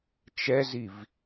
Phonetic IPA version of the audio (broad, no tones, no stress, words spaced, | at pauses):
t͡ʃɛziv